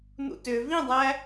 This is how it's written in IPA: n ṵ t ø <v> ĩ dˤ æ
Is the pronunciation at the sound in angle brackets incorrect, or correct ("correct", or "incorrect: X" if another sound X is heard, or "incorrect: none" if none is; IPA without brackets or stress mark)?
correct